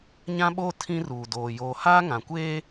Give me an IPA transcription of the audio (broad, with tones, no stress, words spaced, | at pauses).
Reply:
ɲã˦ɓoː˦ tʰĩ˦ruː˨doː˨ joː˨haː˦ ŋã˨kʷeː˦